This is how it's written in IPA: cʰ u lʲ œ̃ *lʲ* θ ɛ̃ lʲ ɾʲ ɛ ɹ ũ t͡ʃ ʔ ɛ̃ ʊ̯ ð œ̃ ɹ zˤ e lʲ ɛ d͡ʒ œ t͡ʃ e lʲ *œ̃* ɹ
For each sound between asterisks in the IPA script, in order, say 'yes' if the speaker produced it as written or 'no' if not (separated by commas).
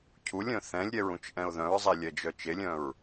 no, yes